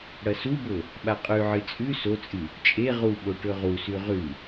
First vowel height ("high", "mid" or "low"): low